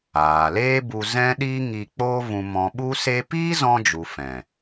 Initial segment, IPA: aː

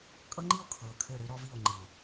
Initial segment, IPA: kʼ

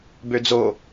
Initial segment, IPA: b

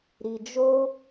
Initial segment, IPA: ɾ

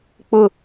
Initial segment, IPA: k͡p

